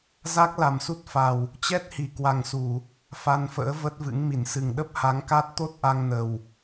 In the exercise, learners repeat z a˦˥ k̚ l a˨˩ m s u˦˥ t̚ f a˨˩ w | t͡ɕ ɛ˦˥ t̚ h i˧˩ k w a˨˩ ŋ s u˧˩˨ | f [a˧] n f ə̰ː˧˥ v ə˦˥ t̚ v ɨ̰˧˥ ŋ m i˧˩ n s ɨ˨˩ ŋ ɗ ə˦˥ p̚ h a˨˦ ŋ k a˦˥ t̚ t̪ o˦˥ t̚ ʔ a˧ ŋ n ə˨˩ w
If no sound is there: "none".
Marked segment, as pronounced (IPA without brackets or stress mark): a˧